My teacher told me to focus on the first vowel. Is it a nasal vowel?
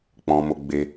yes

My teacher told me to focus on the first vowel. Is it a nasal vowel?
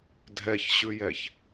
no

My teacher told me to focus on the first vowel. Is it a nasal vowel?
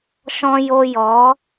yes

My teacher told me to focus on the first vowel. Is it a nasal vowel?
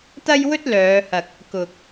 no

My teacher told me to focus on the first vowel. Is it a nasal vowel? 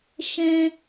yes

